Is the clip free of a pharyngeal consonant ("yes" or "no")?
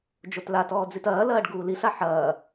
no